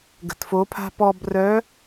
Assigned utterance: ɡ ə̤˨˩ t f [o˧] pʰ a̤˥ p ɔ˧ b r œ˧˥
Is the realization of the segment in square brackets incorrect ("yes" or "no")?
yes